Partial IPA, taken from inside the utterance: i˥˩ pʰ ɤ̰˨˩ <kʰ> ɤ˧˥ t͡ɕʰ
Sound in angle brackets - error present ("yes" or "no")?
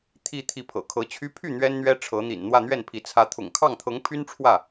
no